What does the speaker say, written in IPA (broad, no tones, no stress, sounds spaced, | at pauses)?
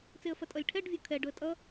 t͡s e ə̯ f ɐ tʼ ʌ lʲ ʈʰ ɛ ɖ vʲ o kʰ ɛ ɖ ʊ ə̯ tʼ ʌ